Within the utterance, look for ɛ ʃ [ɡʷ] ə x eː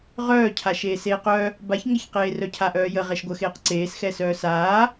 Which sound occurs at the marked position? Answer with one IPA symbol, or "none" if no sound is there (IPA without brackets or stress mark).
ɡʷ